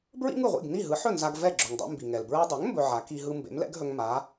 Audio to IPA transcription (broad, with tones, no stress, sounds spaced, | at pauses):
b ɹ ḭ˥ ŋ ɯ˥˩ ʁʷ ḭ˥˩ ɡ n i˥˩ ɦ ɯ˩˥ ħ ɵ˥˩ n z a˧ ɡ v ɛ˥˩ ɡ͡ǁ ɵ˩ ŋ dˤ ɛ̰˧ m b i˩ ŋ ɛ˩ l b ɹ ɛ˧ dˤ ɵ˩˥ ŋ m b ɵ˧ ʕ a˩˥ k i˧ ɦ ɯ˧ m b ḛ˩˥ m l ɛ̰˥ ɡ ɦ ɵ˧ ŋ m a˩˥